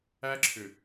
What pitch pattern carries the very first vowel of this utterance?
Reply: high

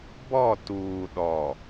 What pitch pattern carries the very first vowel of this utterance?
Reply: falling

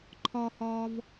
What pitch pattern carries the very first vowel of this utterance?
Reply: high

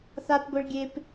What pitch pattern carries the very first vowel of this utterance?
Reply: high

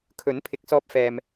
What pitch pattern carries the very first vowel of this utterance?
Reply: rising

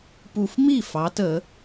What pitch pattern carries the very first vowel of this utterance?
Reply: low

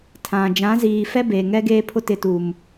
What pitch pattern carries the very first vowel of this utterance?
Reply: low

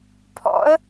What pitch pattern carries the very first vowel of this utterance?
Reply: rising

